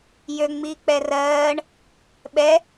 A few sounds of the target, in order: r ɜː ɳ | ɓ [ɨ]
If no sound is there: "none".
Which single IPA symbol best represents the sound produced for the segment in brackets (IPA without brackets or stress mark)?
ɛ